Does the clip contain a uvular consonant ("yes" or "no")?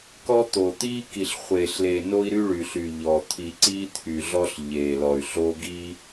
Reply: yes